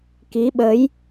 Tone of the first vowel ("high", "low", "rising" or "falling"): rising